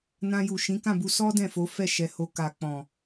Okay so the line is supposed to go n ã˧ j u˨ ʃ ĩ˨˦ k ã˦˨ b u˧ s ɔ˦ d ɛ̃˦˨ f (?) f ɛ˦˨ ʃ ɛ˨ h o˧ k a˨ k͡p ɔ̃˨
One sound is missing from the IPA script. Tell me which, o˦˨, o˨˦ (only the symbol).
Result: o˨˦